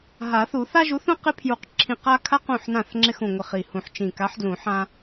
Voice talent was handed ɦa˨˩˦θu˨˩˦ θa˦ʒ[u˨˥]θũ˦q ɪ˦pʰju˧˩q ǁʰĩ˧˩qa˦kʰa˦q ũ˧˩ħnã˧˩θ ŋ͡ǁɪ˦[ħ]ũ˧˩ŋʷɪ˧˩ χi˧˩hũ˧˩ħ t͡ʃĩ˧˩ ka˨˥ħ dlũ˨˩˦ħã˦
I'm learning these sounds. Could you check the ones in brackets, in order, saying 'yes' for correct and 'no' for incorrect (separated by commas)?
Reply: yes, no